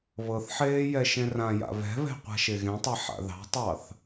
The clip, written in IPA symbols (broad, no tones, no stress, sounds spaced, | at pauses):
β ɤ θ ħ eː j ɛ ʃ ẽ r ã j a̰ β ɛ̤ β ɛ̤ qʷ a̤ ʃ e ɣ ẽ tˤ ɛ ħ a̰ ð ɑ̤ tˤ ɑ θ